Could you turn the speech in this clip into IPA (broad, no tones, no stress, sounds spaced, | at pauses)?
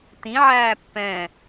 t ĩ ʕ æː pː ɛ̃